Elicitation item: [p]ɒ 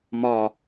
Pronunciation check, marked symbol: incorrect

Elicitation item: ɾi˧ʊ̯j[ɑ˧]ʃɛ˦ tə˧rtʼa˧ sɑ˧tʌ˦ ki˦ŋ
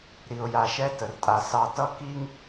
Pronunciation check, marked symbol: incorrect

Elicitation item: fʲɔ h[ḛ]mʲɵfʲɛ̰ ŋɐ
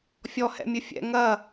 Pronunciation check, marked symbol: incorrect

